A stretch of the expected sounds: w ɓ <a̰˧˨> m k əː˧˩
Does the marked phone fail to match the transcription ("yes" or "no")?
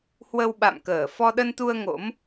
no